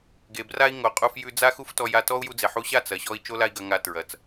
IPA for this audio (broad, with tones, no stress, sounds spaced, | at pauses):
ɡ e˨ b r a˦ i̯ ŋ o˨ qʼ u˧ f j ʉ˧ d͡z a˦ x u˦ f t ɔ˧ j a˧ t ɔ˦ u̯ j u˧ d͡z e˨ ħ u˧ ɕ a˦˨ t͡s ɐ˨ ɕ ɔ˧ i̯ t͡ʃ o˦ l a˦ i̯ ɡ ɐ˧ ŋ a˧ t ɹ ɐ˨ t͡s